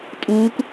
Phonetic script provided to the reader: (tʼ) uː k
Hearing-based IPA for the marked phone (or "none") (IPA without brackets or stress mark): tʼ